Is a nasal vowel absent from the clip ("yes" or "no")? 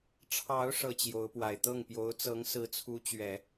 yes